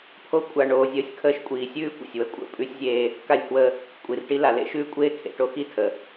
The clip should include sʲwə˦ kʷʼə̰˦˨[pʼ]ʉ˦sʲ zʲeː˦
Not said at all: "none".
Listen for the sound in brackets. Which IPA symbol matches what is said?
pʼ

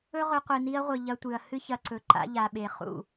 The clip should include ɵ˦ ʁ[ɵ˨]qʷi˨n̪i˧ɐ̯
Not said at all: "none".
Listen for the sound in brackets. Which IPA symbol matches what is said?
ɵ˧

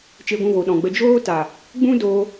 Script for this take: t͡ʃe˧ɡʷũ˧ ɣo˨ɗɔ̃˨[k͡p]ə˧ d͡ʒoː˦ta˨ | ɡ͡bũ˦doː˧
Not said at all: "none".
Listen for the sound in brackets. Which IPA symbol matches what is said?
ɡ͡b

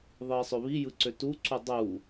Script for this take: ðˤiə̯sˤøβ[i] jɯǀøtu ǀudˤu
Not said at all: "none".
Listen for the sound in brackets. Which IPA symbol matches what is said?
i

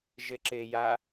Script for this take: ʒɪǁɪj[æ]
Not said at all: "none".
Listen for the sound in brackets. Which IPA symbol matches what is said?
a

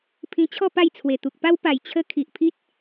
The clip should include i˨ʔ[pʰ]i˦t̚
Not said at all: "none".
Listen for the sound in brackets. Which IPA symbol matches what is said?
pʰ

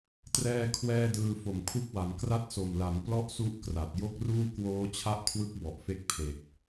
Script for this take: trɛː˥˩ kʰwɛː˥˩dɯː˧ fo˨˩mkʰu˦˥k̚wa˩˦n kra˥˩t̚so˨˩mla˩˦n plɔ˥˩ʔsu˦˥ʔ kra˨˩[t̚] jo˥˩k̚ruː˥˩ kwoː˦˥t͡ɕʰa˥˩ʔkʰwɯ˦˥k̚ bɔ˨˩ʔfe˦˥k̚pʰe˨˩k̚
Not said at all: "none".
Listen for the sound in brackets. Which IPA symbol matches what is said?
t̚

